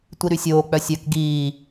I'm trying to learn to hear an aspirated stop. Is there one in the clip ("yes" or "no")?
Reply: no